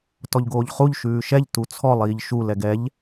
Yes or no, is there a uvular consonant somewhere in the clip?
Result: yes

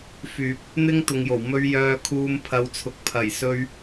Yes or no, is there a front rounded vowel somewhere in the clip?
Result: yes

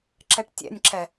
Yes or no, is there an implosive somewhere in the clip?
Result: no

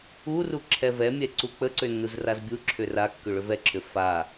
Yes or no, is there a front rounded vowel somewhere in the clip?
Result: yes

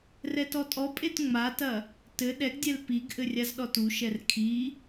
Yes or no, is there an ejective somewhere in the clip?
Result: yes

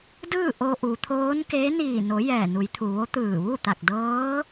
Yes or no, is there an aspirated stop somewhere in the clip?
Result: yes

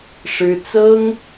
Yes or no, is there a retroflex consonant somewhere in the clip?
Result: yes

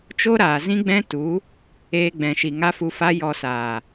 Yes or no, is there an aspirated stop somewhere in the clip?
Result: no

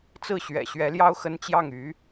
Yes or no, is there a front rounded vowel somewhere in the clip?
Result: yes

